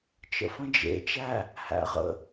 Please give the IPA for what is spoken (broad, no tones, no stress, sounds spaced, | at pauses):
t͡ʃ ə̰ f ə̃ d͡ʒ ḛ t͡ʃ æ | h æ̰ ʁ ə̰